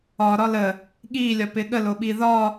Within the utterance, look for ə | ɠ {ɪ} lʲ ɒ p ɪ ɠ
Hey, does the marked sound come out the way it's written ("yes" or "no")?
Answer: no